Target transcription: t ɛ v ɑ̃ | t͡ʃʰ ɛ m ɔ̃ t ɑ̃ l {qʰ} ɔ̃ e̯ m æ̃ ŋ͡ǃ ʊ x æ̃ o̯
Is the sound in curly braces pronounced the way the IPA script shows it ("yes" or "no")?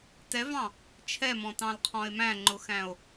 yes